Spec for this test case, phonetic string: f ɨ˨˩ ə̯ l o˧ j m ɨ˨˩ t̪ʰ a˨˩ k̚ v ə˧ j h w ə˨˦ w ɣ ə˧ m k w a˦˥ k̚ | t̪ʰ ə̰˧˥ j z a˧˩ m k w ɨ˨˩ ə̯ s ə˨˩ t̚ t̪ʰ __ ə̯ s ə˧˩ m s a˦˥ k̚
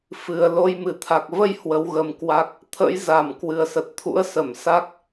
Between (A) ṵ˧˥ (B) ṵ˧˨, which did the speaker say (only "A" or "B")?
A